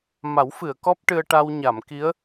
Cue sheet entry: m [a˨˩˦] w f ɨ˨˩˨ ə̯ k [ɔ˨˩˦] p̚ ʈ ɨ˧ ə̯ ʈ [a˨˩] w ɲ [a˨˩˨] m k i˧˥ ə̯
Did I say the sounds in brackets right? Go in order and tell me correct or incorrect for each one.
correct, incorrect, incorrect, correct

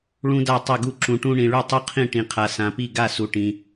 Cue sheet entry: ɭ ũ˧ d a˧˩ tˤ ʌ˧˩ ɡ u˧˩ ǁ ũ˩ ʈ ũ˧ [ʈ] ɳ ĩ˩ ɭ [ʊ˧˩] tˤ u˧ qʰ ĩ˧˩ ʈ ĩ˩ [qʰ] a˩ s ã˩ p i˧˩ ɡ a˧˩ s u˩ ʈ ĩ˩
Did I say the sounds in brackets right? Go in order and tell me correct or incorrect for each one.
incorrect, incorrect, correct

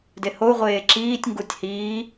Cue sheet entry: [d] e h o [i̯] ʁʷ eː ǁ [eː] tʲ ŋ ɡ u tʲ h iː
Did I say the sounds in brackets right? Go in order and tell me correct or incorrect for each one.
correct, incorrect, incorrect

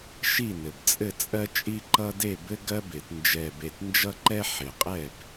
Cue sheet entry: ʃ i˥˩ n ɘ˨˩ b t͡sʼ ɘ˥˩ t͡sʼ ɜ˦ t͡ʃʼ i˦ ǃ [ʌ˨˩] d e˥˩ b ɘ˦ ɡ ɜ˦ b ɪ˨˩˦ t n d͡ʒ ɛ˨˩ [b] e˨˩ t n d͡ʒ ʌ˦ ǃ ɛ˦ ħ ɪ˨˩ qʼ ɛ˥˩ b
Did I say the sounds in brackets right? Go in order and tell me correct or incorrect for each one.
incorrect, correct

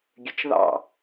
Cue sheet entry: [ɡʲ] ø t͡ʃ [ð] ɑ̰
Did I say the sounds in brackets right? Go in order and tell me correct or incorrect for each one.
correct, correct

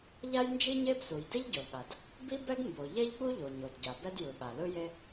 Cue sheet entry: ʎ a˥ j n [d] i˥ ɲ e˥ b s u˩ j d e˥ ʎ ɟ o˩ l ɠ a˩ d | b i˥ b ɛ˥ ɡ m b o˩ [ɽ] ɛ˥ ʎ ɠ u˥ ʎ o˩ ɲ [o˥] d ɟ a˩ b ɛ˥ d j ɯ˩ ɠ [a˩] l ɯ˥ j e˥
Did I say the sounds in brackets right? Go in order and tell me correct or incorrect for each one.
incorrect, incorrect, incorrect, correct

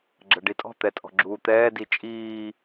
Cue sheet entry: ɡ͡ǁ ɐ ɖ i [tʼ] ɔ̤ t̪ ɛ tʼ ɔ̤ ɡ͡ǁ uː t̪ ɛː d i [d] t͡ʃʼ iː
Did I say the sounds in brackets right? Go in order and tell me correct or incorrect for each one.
correct, incorrect

